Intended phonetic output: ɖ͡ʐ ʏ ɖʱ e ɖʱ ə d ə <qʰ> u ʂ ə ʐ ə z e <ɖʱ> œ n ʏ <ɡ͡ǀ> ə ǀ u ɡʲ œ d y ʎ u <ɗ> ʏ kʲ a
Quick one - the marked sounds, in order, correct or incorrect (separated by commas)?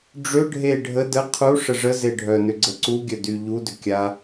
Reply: correct, correct, correct, incorrect